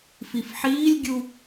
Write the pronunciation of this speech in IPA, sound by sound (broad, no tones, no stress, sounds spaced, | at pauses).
f i f ħ iː lʲ ɡʲ u